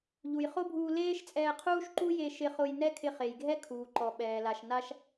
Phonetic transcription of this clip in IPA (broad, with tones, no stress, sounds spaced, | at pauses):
ʎ u˩ j χ o˥ bʱ uː˧ l eː˥ ʃ t͡sʼ ɛː˧ qʰ uː˥ ʃ ǃ u˥ j e˧ ʃ ɪ˧ χ ʊ˧ j n ɛ˥ kʰ ɪ˧ χ e˩ j ɡʱ ɛ˥ kʰ uː˩ ǃ ɔ˩ ɓ ɛː˩ l a˩ ʃ n a˧ ʃ